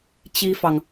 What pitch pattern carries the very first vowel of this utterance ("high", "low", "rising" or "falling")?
high